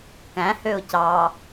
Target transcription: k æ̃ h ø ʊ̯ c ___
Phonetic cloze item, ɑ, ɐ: ɑ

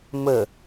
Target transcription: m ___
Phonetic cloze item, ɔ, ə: ə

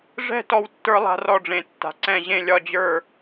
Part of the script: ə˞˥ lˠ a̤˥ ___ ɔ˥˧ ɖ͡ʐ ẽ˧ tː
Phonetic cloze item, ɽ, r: r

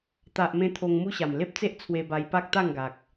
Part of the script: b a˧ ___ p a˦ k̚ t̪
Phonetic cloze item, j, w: j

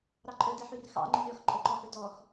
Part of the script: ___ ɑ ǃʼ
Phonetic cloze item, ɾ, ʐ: ɾ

